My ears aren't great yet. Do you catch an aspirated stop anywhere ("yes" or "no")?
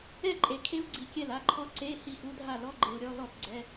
yes